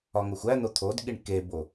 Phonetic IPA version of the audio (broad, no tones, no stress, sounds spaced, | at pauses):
ɒ ŋ o xʷ æ n̪ o t̪ʰ o d ɠ i ɳ k e b o